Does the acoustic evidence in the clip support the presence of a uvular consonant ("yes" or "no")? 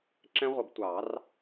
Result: yes